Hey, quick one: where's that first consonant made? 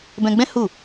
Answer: lips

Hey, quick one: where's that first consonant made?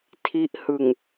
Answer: tongue tip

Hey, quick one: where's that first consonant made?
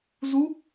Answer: tongue tip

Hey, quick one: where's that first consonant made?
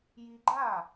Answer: palate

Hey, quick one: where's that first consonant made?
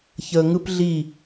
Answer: palate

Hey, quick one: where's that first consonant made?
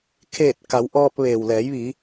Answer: velum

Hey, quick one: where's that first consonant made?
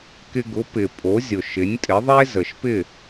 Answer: velum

